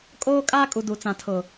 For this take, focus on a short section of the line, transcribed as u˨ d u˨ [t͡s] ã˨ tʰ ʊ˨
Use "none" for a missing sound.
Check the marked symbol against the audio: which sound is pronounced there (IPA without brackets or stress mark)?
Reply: t͡s